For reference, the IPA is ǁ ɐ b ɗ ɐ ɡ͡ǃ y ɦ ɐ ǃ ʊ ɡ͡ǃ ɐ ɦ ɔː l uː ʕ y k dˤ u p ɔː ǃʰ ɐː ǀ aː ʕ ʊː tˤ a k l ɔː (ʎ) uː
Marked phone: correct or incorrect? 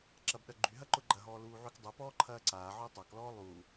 incorrect: lˠ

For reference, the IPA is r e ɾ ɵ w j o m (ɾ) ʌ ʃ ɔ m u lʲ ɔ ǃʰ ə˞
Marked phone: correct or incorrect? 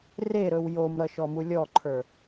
correct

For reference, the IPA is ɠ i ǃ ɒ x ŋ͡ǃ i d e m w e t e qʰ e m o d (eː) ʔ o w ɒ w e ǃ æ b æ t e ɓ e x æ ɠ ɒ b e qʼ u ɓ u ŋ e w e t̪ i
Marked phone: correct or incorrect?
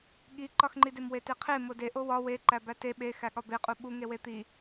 incorrect: e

